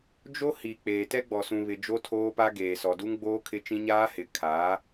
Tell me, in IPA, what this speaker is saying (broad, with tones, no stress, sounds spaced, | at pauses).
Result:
d͡ʒ o˦ h i˨ k͡p eː˨ t ɛ˦ ɡ͡b ɔ˨ s ũ˨ β ɪ˨ d͡ʒ o˦ tʰ oː˦ p a˦ ɡ eː˨ s ɔ˨ d u˦ ŋ ɡ͡b oː˦ kʰ ɪ˦ t͡ʃ ĩ˦ ɲ aː˦ h ɪ˨˦ kʰ a˨˦